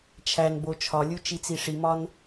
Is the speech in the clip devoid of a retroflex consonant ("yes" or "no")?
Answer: no